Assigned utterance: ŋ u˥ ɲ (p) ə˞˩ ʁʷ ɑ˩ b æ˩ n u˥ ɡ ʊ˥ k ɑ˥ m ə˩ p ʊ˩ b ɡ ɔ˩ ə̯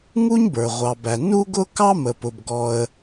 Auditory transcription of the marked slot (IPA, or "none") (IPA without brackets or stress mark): b